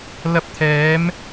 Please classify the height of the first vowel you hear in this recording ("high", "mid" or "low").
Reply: low